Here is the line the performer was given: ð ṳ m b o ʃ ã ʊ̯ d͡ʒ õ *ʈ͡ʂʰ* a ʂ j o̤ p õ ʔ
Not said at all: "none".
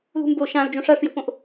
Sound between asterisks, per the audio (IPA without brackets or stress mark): ʂ